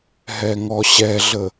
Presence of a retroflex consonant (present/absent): absent